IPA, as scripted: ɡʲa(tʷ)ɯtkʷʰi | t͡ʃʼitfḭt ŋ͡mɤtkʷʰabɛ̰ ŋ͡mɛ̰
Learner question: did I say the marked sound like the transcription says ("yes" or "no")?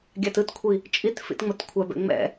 no